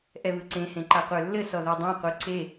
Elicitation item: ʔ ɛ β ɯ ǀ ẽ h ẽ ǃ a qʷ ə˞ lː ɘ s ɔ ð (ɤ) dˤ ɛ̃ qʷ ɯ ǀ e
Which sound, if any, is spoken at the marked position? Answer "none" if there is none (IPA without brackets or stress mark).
ə˞